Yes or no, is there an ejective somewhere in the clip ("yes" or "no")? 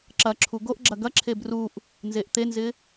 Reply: no